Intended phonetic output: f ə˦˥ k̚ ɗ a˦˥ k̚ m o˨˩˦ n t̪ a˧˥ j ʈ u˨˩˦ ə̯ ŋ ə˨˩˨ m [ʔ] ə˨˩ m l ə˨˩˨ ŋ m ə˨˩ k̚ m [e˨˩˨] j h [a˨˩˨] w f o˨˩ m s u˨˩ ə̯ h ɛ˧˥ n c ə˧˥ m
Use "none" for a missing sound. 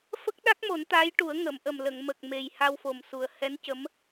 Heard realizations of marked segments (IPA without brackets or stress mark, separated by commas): ʔ, e˨˩, a˧